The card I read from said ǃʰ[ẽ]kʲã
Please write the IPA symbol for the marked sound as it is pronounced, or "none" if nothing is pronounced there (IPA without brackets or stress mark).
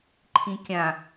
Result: ĩ